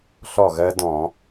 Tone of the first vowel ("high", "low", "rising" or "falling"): falling